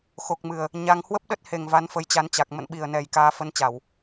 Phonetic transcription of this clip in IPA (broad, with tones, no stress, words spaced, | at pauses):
xo˨˩k̚mɨ˨˩ə̯ | ɲa˧ŋ hwə˦˥p̚ɗə˦˥t̚he˨˩ŋ va˨˦nfə˧jt͡ɕa˨˦nt͡ɕa˨˩k̚ mə̰˧˨nɓi˨˩ə̯nɛ˨˩j kaː˨˦fə˧nt͡ɕa˧˩˨w